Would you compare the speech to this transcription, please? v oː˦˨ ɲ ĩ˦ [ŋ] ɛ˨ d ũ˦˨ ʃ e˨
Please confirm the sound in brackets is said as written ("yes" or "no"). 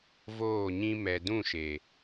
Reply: no